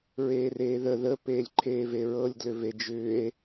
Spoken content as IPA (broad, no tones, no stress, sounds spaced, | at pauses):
ɹ eː r eː ð ə ð ə p eː lʲ ǃʰ eː v e ɹ ɤ lʲ d l ʏ v e d͡ʒ ʏː e̯